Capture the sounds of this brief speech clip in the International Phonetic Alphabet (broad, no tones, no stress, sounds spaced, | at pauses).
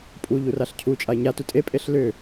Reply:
pʼ u ʎ u r a ɬ cʰ u t͡ʃʼ a e̯ ɲ a t u tʼ e pʼ e ɬ l ʏ